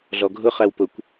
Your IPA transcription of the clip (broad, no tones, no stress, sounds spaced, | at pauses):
ɮ ɔ ɡʱ ʊ χ æ w p ʊ kʷ